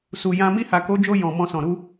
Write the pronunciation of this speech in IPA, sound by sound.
s u˨ j ã˧ m i˧ h a˨ k o˨˦ d͡ʒ o˧ j ɔ̃˨ m ɔ̃˧ s ɔ̃˨ ɾ u˧

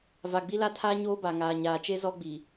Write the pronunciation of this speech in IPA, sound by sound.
v a˨ ɡ͡b i˦ l a˦ tʰ aː˦ ɲ oː˦ b a˨ ŋ aː˨ ɲ aː˨ t͡ʃ e˦ z ɔ˦ ɡ͡b i˨

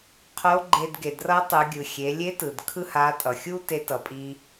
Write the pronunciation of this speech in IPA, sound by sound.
qʰ o˧˥ ɡ͡ǃ e˧ d ɡ e˩ d r ʌ˧˥ tˤ ɯ˩˧ ɡʲ ɯ˩ xʲ e˩˧ lʲ e˧˥ t ɯ˩ d kʰ ɯ˥ h a˧˥ tʼ ʌ˩ xʲ u˥ t e˧˥ t ʌ˩˧ pʼ i˧

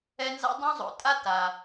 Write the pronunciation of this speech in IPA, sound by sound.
ɛ˦ n z a̰˥ dˤ õ˥ zˤ o̰˨ tʼ a˥ t a˩

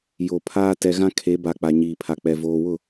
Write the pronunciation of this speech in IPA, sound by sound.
j o˨ pʰ aː˦ t ɛ˨ ɣ ã˦ kʰ e˨˦ b a˨ k͡p a˨ ɲ iː˨ pʰ a˨ k͡p ɛ˨ v oː˨ w ʊ˦˨

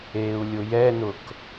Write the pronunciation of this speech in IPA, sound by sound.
eː u̯ lʲ ʊ j ɛ n ʊ k

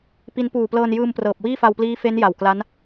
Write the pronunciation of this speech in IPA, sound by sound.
p i˦˥ n p uː˨˩ p l ɤː˧ n j ɯː˧ m p r ɤː˨˩ p̚ w iː˥˩ f a˧ w p l iː˦˥ f e˦˥ n j a˨˩ w k l a˦˥ n

